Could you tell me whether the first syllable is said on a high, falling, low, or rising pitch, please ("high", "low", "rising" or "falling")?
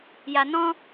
low